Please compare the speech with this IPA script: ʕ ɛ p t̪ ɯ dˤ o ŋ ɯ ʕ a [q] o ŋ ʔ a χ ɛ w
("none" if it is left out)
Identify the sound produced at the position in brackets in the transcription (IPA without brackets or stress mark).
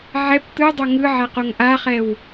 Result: q